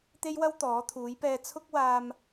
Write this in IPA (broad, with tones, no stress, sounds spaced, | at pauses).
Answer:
t̪ e˥ j w ɐ˥ w t̪ ɔː˨˥ t̪ʰ uː˨˥ j p ɛː˧ t͡sʰ ʊ˥ k̚ w aː˧ m